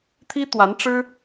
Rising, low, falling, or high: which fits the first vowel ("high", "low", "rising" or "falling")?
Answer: high